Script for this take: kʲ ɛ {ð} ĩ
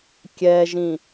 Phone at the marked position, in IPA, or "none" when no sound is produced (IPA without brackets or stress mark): ʒ